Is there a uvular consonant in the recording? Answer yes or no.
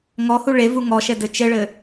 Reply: no